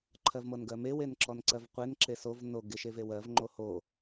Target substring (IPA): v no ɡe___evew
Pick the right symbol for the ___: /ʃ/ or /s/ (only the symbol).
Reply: ʃ